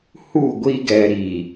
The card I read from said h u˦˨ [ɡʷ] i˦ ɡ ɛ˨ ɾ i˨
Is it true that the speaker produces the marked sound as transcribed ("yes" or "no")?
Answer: yes